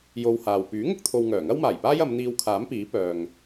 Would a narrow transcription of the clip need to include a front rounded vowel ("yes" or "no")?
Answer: yes